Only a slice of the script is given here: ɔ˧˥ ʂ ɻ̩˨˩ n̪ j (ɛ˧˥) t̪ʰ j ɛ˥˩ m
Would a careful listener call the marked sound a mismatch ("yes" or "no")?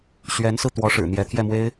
no